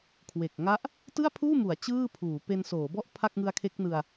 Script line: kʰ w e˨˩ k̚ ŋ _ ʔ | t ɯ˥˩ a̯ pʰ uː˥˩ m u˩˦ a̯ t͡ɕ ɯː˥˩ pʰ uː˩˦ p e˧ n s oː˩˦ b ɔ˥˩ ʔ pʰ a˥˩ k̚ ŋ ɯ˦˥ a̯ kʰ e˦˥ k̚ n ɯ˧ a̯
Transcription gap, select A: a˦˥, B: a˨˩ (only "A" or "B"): A